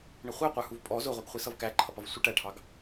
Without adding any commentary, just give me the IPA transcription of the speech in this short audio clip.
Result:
ɳ ɪ χʷ ɛ qʷ ə˞ h u v pʼ ɔ z ʊ ʁʷ i ɡ χʷ i s ʌ v k æ ǃʰ ʌ p ʌ v sʷ i ʈ æ ʈʰ ɑ ɡ

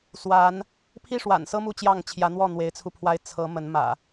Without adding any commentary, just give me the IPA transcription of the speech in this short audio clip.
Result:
s w a˨˦ n | pʰ i˥˨ ʂ w a̰˨˩ n s ɤ˦ m u˥˨ t͡ɕ j ɑ˥˨ ŋ t͡ɕʰ j ä˨˦ n̪ w ɔ˥˨ n̪ w e˨˦ ɪ̯ t͡sʰ u˧ pʰ w a˦ ɪ̯ t͡sʰ ɤ˨˦ m ə˨˦ n m ä̰˨˩

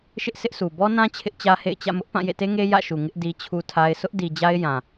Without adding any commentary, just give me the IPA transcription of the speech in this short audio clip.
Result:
ʃ ɪ˦ ʔ s ɪ˦ ʔ s u˨ b ɔ˦ n ã˦ t͡ɕʰ ɪ˦ ʔ t͡ɕ ä˦ h ḛ˦˨ ɪ̯ t͡ɕ ä̰˦˨ m ʊ˦ ʔ p ã˦˨ j ḛ˦˨ t e˦ ŋ e˦ j ä̰˦˨ ʃ u˨ ŋ ɪ˦ ʔ d i˦ t͡ɕʰ u˦ tʰ a˦ ɪ̯ s ʊ˦ ʔ d i˨ d͡ʑ a˦ ɪ̯ j ã˨

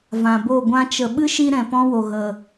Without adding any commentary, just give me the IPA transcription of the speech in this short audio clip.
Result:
v ã˨ b o˦˨ ɡʷ ã˧ t͡ʃ ə˨ ɓ ɨ˦ ʃ i˧ ɾ ɛ̃˨ p ɔ̃˦ w o˨ ɣ ə˨

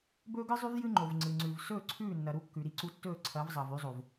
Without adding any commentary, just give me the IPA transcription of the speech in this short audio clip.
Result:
b ɵː˦ ɡ ɨ˦ zˤ ʉ˦ v j ɨ˦ ŋ͡ǃ o˨ v ŋ͡ǀ ɨ˨ ŋ͡ǀ ʉ˨ v s ɵː˦˨ ǀʰ ʉː˦˨ nː ɐ˨ ɾ u˦ kː ʉ˨ ɾ i˦ ǀ u˦ tː ɵː˦˨ ǀʰ ɐː˨˦ v zˤ ɐː˨ v ʉ˦ zˤ o˨ v

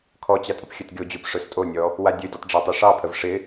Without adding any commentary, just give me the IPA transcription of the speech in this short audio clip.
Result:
kʰ ɔ t͡ɕ a tʼ ɪ p xʲ ɵ t ɡʲ o d͡ʑ o p ʂ ɵ s tʼ o nʲ ɔ | w a dʲ ɵ dʲ ə tˤ ɖ͡ʐ a tˤ ɛ ʂ ɑ pʰ ə v ʂ ɪ

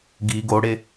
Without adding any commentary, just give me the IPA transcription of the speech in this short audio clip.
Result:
ɡ i ɡ o ɽ e

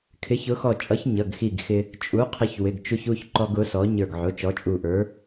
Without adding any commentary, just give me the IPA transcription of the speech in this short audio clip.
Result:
kʰ ɪ˨˥ ç ʊ˨˥ x ɔ˧˩ t͡ʃʼ ʌ˨˥ ç ɲ ʌ˩˧˩ ɡ x i˧˩ ɡ x ɪ˧ | t͡ʃʼ u˨˥ qʰ ɪ˧ ç w ɪ˩˧˩ ɡ t͡ʃ u˧ ç u˩˧˩ ç ǃ ɔ˧ ɡ ʊ˨˥ s ɔ˨˥ ɲ ə˞˧˩ ɡ ʕ ʊ˩˧˩ t͡ʃ ɔ˨˥ t͡ʃʼ u˧˩ ʔ ə˞˨˥

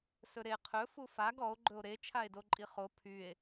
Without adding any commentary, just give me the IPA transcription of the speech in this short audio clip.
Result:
s ɵ ɾ e qʰ ɵ f u f a ɡ ɔ o̯ ɡ͡ǃ ɵ o̯ ɾ e t͡ʃʰ a e̯ d o ǃʼ i χ o pʰ y e̯

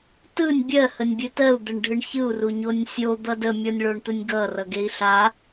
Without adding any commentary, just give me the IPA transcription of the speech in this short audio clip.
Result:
t ɯ nʲ bʲ ɜ h ə nʲ bʲ ɘ t ɜ u̯ d̪ ɘ ɳ ɖʱ ɯ ɳ ç ɯ u̯ r u ɲ o nʲ sʲ o d̪ ʌ d ə mʲ ɔ nʲ ɭ o ɳ t̪ ɘ nʲ ɡ ʌ r ʌ ɡ e i̯ ɬ a

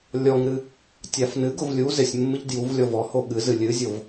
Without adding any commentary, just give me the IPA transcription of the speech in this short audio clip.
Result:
lʲ ɔ ŋ ɾ ɨ | tʲ a f n ɨ ɡ ʊ v lʲ u z ɪ sʲ mː ɨ ʎ d j u v lʲ ɔ v ɔ h o ɠ ɨ z ɨ lʲ ɨ zʲ o v

